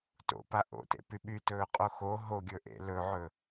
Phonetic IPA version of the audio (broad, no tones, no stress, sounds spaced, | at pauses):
t o̰ p a ʔ o̰ t ḛ p y ɓ y t ɵː qʼ o x o ɦ o ɡʲ ɵ ʔ ḛ l ɵ ʕ ɵ